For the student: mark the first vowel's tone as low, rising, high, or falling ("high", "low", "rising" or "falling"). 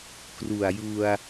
low